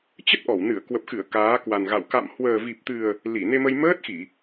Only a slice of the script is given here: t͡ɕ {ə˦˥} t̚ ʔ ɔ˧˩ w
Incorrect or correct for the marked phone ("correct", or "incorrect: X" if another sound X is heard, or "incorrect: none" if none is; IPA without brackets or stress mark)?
correct